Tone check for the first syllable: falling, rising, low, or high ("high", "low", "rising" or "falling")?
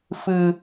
low